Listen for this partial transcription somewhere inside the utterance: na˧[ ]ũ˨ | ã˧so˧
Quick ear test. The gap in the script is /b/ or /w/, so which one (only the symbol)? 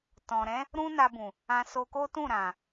b